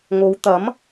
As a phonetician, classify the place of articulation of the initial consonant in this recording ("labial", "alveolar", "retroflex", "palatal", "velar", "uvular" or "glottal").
velar